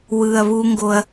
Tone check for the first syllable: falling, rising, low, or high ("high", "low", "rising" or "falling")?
low